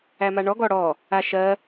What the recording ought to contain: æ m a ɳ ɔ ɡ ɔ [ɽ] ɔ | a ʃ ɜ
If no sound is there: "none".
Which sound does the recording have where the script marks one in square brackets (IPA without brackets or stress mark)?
ɽ